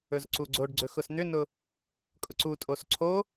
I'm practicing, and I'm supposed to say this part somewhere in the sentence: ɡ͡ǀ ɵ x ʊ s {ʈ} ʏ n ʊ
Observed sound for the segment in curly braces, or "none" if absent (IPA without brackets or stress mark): n̪